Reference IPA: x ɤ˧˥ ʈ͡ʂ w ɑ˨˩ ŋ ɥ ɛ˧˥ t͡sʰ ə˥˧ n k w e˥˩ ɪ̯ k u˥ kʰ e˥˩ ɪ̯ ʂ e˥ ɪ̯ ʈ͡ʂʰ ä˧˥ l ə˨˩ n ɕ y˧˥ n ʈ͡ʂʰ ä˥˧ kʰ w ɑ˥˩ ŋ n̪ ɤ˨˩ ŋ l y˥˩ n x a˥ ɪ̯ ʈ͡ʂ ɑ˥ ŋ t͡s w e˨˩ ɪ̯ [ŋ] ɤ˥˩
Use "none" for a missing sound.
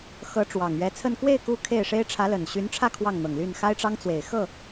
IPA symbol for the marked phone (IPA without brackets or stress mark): x